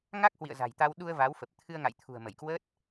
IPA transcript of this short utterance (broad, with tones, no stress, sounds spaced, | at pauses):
ŋ a˦˥ k̚ h w ḭ˧˨ ə̯ z a̤˨˩ j t̪ a˧ w ɗ u˧ ə̯ v a˨˦ w f ə˨˩ p̚ t̪ʰ ɨ˧ ə̯ ŋ a̰˧˨ j t̪ʰ ṳ˨˩ ə̯ m ə˧˩ j k w ə˦˥ t̚